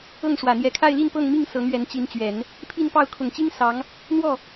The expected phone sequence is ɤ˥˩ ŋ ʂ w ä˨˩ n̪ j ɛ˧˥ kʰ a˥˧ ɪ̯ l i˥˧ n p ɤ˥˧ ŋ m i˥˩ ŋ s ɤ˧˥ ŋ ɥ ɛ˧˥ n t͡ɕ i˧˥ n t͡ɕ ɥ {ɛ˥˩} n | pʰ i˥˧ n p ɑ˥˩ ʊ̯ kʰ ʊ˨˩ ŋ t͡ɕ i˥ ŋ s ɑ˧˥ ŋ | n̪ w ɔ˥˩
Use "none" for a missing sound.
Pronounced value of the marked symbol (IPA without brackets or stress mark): ɛ˨˩˦